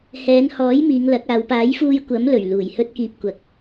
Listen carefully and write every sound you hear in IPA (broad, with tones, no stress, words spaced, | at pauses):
hɛː˨˧nhɔː˨˥j miː˨˧ŋlɐ˨˥k̚aː˨˧w paː˨˥jfuː˧j kʷɐ˨˥mlɵ˨˩ɥ luː˨˩jhɵ˧t̚kiː˨p̚kʷɐ˨k̚